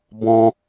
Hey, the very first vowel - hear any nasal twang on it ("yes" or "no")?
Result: yes